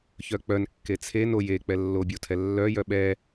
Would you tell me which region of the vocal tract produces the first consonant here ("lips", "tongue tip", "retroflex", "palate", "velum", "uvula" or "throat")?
palate